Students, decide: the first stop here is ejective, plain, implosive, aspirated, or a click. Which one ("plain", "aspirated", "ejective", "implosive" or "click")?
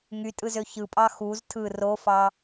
ejective